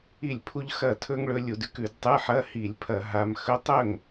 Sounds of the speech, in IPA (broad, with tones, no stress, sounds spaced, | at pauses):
i˥˩ lʲ pʰ u˥ ʎ x ɐ˥˩ tʰ ɵ˥ ŋ ɭ ɵ˧˥ lʲ u˧˩˧ d ʉ˥ k ʉ˧˩˧ d tˤ ɨ˧˥˧ ħ ɐ˧˥˧ h i˧˩˧ lʲ pʰ ɐ˧˩˧ ɦ a˧˥ m x ɵ˧˥ tˤ ɵ˥˩ ŋ